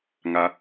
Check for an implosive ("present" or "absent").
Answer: absent